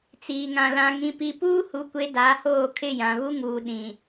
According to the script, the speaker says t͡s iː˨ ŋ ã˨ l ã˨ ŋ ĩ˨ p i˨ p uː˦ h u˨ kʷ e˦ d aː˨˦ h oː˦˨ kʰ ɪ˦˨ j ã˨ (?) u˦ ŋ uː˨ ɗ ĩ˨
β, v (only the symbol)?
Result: β